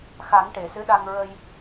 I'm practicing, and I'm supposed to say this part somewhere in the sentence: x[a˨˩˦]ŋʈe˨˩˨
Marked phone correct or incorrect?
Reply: correct